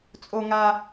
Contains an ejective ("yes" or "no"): yes